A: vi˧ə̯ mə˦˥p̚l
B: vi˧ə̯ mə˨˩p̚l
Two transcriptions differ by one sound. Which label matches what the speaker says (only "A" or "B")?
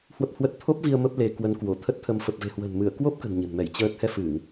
A